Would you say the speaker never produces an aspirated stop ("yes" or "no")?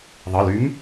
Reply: yes